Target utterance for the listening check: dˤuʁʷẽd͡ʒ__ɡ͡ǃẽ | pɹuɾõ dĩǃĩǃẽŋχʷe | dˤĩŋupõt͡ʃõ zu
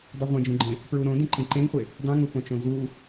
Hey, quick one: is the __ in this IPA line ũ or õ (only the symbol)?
ũ